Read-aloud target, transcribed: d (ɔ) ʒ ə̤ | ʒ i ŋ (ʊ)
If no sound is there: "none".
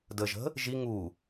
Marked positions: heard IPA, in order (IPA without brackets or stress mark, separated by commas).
ə, u